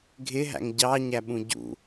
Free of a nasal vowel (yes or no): no